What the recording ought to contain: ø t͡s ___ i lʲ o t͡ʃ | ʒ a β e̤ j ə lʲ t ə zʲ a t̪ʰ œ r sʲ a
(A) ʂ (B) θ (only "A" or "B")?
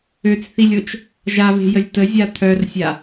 B